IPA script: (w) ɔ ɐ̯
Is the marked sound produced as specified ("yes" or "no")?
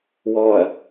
yes